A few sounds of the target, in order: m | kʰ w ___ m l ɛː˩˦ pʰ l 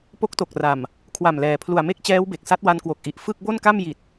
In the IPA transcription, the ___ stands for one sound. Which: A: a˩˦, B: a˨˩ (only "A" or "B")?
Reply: B